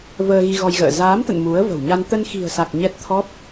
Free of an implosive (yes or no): yes